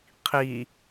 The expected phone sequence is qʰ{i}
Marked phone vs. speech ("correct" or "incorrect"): correct